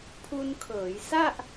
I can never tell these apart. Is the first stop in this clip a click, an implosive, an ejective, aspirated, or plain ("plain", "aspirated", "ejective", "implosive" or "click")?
aspirated